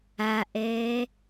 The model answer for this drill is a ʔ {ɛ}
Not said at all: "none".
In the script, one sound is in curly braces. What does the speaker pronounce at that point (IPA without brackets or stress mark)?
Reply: ɛː